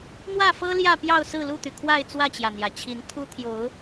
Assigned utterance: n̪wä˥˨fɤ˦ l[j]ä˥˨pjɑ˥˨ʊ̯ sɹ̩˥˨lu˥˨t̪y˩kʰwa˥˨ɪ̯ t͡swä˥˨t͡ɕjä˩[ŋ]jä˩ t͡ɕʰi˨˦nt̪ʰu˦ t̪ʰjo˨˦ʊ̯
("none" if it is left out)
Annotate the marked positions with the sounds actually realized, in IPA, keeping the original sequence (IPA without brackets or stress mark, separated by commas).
j, n̪